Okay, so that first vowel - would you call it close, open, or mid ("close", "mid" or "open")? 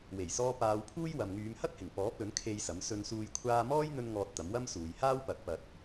mid